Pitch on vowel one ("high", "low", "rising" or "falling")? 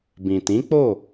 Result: low